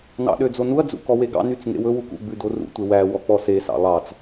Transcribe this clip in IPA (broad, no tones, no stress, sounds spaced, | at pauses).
n ɑ̰ ɗ ø d͡z o n u ɐ̯ d͡z ṵ k ɔ w e ɡ ɑ̰ n y t͡s ŋ ḛ w ɵ w u k ṵ ɡ͡b ʉ d o r ṵ tʷ e w æ w ɔ k͡p ɔ s e s ɑ̰ lˠ ɑ t͡s